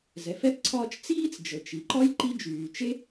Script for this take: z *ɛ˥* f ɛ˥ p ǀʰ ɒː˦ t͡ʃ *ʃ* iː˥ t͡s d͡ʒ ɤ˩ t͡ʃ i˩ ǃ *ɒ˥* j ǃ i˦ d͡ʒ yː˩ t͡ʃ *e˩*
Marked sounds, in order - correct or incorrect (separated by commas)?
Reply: incorrect, incorrect, correct, incorrect